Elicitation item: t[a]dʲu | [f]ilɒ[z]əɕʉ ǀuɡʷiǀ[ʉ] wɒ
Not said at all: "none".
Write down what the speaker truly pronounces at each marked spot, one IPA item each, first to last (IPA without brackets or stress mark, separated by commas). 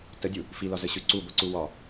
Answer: ə, f, z, u